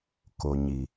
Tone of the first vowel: low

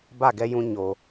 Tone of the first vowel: falling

